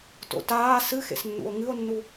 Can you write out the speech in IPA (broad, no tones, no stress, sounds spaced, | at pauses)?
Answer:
t o̰ t aː s ɨ x ḛ s nː ṵ o̯ ŋ ɨ o̯ nː u